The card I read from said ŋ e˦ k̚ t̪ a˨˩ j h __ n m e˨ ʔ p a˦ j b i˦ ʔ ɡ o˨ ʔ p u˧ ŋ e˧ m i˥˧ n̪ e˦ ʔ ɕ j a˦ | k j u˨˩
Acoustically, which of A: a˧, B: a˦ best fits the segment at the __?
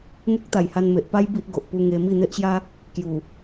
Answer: A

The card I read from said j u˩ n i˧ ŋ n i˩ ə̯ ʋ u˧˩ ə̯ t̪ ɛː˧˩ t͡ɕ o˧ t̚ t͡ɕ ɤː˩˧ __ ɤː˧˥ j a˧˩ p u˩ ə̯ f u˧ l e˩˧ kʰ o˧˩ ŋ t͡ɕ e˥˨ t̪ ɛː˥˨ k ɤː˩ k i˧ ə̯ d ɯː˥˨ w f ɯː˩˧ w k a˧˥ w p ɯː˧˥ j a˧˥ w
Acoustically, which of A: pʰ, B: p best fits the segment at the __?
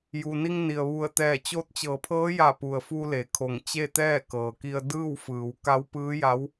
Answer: A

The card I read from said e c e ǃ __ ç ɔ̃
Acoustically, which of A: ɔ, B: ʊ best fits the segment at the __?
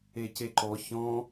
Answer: A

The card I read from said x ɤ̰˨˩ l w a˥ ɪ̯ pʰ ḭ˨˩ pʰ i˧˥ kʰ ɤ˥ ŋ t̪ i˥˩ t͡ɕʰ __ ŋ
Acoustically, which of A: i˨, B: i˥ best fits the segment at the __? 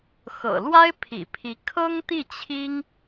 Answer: B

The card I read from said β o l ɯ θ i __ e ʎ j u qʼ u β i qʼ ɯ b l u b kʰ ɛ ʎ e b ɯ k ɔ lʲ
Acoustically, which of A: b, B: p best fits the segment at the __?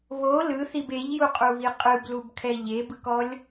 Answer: A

